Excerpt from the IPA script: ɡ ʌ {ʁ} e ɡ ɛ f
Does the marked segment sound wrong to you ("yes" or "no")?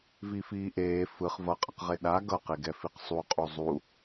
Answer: yes